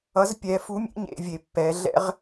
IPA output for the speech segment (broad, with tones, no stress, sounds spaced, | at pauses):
ʌ˩˥ z pʲ ɛ˩˧ f u˧˥ mʲ ḛ˧˥ ɲ ḛ˩˧ vʲ e˩ pː ɛ˩˧ ɮ ɛ̰˥ ʁ